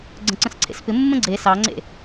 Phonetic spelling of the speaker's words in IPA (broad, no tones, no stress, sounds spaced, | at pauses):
ɡ͡ǀ ə̃ ǀ ə̃ s ǀʰ ḛ s p ɪ mː ə̃ ɡ͡ǀ e s ɑ ŋ͡ǀ ḛ